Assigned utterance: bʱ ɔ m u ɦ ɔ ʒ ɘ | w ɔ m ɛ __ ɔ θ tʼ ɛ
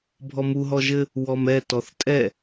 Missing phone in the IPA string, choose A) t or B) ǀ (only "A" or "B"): A